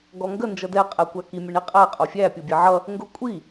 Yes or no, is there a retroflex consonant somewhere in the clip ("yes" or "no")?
yes